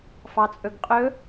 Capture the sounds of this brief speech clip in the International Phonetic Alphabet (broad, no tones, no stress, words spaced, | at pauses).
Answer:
fɑt͡sʼɵɡqʼɵ